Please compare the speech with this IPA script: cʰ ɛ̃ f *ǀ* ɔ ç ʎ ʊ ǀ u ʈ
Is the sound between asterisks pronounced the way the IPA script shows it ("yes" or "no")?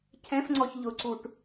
no